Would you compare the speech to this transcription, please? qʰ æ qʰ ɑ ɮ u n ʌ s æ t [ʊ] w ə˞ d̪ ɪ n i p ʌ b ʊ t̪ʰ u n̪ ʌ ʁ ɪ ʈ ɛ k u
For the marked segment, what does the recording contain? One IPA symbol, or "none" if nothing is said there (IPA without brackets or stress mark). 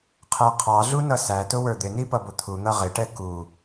ʊ